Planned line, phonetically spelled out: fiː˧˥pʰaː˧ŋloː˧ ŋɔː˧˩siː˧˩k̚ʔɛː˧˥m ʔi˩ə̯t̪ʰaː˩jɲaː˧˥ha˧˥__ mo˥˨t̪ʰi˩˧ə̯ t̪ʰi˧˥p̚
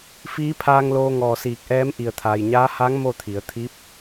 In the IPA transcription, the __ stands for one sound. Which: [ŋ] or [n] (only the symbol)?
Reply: ŋ